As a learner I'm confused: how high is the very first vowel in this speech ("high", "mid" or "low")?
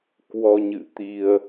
mid